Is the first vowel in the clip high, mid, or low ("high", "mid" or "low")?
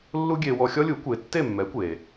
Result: high